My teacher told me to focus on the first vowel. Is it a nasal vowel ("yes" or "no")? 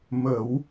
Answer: no